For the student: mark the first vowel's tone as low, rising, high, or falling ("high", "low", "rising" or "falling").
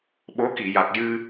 rising